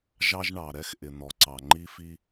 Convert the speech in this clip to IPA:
ʒ ɑ˦ ʒ ɳ ɑ˨ ɾ ɛ˦ x ʔ ɪ˨ n̪ ɔ˨ ǀ ɑ˨ ŋ͡ǃ i˦ f i˦

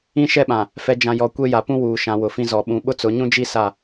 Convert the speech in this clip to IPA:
ĩ˦ ʃ ɛ˦ ɓ ã˨ | f ɛ˨ d͡ʒ ã˨ j ɔ˨ kʷ e˦ j a˨ p ũ˦ w uː˨ ʃ ã˨˦ w ʊ˨ f ĩ˦ z ɔ˨ ɓ ũ˨˦ ɓ ʊ˦ t͡s ʊ˨˦ ɲ ũ˦ d͡ʒ i˦ s a˦˨

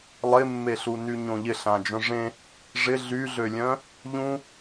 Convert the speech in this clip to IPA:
lˠ ɪ mː e ɬ u n y ɲ õ ʎ ɪ ɬ ã d͡ʒ œ̃ ʐ ẽ | ʐ ɪ ɮ y ɮ ø lʲ œ̃ | ʎ ũ

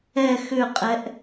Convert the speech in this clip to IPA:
ɛ x ʏ qʼ ɛ ʔ

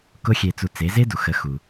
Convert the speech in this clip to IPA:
k ʊ˥ xʲ e˧ t͡s u˧ t͡s e˩˥ z e˥ d u˩ x ə˩˥ x u˩

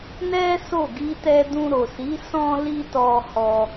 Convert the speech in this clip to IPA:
n ɛ˦ s o˦˨ ɡ i˧ t ɛ˧ d ũ˧ ɾ o˨ s i˨˦ s ɔ̃˦ l i˦ t ɔ˧ h ɔ˧

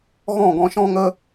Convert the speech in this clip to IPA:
ɣ ɔ̃˦˨ ɡ ɔ̃˧ ʃ ɔ̃˦ ŋ ə˦

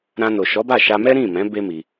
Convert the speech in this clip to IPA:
ɾ ã˧ n o˨ ʃ ɔ˨˦ b a˦˨ ʃ a˧ m ɛ˦ ɾ ĩ˦˨ m ɛ̃˨˦ b e˦ m i˧

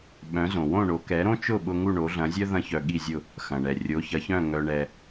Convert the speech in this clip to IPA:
ɓ œ̃˩˥ z õ˩ w õ˥˩ ɳ o˩˥ k ɛ˩˥ ɾ õ˥ t͡ʃ ʊ˥˩ ɓ ʊ˧ ŋ u˥˩ ɳ o˩˥ ɮ ɐ̃˩˥ zʲ œ˥ ð ɐ̃˥ ç œ˧ ɠ i˥˩ zʲ ʊ˥˩ | x ɐ̃˩ ɳ ɛ˩ rʲ o˩˥ ç ɐ˩˥ ç œ̃˥˩ ŋ œ˧ ɳ ɛ˧

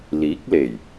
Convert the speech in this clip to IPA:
l iː˨˥ k̚ l e˨˩ j

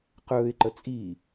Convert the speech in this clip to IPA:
q ɵː ɪ̯ ǃ ə t͡sʼ i

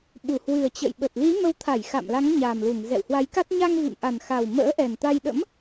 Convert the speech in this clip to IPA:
ɓ u˧˩ h w ɨ˨˩ ə̯ t͡ɕ ə̰˧˨ j ɓ ə˨˩ t̚ l i˨˦ m ə˨˦ w t̪ʰ a˧˩ j x a̰˧˨ m l a˨˦ ŋ ɲ a˨˩ m l u˧˩ ŋ z ɛ̰˧˨ w h w a˨˦ j k a˦˥ t̚ ɲ a˧ ŋ v ḭ˧˨ m ʔ a˨˩ n x a˨˩ w m ə̰ː˧˥ ʔ ɛ˨˩ n t̪ a˧ j ɗ ə̰˧˥ m

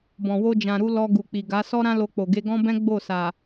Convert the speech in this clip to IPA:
b ɔ̃˨ w o˧ d͡ʒ ã˨ ɾ u˧ l ɔ˧ ɡ u˨ k͡p i˨ ɡ a˨˦ s ɔ˦ ɾ ã˦ l o˧ k͡p o˨ ɡ e˧ ɡ ɔ̃˦ b ɛ̃˦ ɡ͡b o˦˨ s a˨

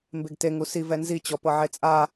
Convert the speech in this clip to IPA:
m b e ɡ t e ŋ u s i v ɛ n z i t͡ɕ ɔ p ɤ ʕ e t͡sʼ a

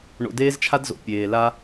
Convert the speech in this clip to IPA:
ɳ o̰˨ d eː˦ z t͡ʃʰ a˦ d z o̰˨ pʲ eː˨ l a˦

